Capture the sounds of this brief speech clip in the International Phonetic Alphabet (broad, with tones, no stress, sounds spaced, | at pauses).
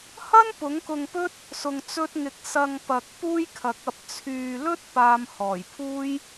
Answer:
h ɐ˥ n p ʊ˨˥ ŋ k ʊ˧ ŋ p ɵ˥ t̚ | s ʊ˧ ŋ t͡s ɵ˥ t̚ ŋ ɪ˧ k̚ s ɐ˧ ŋ p ɐ˨ k̚ p uː˥ j kʰ ɐ˨˥ k̚ ɐ˧ p̚ t͡sʰ yː˨ l ɵ˥ t̚ p aː˧ m h ɔː˨˩ j pʰ uː˥ j